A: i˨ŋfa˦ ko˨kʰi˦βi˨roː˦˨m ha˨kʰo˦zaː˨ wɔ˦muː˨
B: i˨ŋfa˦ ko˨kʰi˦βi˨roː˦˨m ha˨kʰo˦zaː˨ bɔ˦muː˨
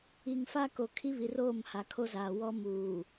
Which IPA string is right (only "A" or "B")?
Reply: A